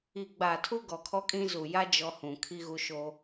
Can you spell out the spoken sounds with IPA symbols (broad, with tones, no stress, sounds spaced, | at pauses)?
i˨ ɡ͡b a˨ tʰ u˦ ɡ ɔ˨ kʰ ɔ˦ kʼ ĩ˦ z u˨ j a˦ d͡ʒ ɔ˦ h ũ˨ kʰ i˦ ɣ u˦ ʃ o˦